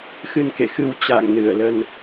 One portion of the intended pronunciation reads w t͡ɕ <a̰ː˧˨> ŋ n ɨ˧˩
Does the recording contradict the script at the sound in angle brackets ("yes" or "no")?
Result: no